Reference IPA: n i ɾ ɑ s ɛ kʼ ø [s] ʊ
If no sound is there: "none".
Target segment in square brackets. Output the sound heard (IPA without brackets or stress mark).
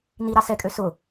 s